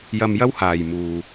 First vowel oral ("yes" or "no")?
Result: yes